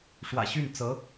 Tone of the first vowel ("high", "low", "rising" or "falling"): low